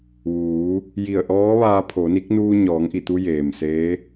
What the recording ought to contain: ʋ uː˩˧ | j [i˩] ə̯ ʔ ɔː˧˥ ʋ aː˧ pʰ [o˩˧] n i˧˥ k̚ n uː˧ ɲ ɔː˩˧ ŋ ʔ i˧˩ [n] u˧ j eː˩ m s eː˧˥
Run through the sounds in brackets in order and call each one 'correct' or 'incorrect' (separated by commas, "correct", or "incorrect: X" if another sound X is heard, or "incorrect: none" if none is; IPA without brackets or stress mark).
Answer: incorrect: i˧˩, correct, incorrect: t̪